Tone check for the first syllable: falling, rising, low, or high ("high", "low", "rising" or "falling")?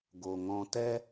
low